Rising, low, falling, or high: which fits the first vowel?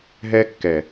high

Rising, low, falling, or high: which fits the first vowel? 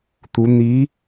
rising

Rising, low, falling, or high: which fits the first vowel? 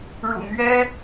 low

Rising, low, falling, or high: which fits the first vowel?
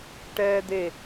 high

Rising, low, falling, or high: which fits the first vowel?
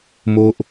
high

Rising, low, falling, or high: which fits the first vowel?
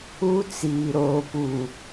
high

